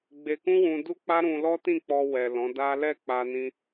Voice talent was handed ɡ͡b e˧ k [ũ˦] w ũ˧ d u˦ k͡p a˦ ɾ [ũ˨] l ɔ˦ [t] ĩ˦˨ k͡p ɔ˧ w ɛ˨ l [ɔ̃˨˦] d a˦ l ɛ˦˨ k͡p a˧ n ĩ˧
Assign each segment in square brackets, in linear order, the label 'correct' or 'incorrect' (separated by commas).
correct, incorrect, correct, correct